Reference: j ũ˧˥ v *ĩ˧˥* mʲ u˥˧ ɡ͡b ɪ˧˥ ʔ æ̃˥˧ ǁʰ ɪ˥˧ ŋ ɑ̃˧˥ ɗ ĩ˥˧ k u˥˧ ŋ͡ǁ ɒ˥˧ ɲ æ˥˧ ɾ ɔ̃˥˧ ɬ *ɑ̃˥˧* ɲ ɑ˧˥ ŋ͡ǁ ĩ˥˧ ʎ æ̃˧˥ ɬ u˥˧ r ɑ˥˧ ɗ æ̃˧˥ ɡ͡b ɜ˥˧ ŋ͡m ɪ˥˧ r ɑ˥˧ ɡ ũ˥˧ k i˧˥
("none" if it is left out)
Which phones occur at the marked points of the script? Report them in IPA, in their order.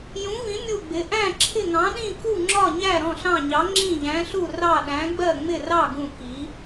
ĩ˧˥, ɑ̃˥˧

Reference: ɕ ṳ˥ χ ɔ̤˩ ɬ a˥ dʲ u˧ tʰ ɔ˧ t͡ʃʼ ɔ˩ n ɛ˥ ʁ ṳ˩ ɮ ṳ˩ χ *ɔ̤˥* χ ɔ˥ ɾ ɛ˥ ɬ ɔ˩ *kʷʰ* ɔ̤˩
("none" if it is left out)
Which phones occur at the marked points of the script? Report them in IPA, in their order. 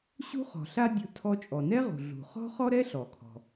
ɔ̤˥, kʰ

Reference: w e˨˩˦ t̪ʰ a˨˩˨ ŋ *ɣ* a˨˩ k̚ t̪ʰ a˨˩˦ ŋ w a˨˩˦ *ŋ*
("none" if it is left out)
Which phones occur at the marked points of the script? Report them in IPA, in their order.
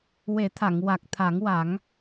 w, ŋ

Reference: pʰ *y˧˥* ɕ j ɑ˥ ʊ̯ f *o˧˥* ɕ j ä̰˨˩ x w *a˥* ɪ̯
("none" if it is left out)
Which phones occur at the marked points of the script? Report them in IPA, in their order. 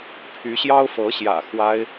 y˧˥, ɤ˧˥, a˥

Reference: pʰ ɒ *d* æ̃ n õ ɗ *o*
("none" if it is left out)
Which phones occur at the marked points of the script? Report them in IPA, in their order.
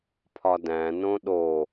d, o

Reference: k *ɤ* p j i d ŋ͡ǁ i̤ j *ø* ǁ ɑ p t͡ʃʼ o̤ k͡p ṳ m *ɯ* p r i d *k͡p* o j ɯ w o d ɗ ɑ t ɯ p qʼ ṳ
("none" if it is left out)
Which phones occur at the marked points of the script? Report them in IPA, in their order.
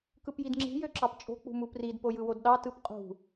ɯ, ø, u, p

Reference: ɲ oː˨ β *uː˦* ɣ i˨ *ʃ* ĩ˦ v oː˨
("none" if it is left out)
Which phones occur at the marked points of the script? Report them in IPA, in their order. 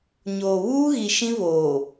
uː˦, ʃ

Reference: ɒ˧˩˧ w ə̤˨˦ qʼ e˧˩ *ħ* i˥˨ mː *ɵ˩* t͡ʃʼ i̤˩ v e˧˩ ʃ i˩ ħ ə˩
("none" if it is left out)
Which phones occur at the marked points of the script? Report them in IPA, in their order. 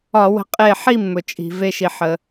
ħ, ɵ˩

